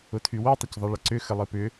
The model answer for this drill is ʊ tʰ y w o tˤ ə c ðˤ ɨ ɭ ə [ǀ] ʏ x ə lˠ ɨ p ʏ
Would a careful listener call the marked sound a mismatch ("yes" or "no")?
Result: no